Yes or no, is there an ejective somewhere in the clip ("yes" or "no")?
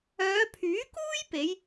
no